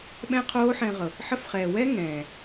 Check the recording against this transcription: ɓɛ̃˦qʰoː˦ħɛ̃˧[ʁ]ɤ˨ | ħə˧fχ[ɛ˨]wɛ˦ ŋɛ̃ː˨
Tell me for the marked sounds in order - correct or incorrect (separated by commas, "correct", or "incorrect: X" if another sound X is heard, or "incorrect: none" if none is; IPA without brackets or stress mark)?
correct, incorrect: ɛː˨